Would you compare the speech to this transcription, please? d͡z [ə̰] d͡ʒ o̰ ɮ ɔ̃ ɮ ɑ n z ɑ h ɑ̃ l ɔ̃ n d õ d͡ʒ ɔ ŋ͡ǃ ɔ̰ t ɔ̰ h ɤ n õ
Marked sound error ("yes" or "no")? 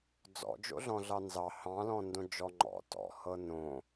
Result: yes